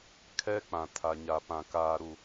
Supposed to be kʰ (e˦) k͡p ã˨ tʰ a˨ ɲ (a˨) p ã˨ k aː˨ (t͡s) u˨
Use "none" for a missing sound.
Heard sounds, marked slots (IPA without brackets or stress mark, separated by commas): ɛ˦, a˨, ɾ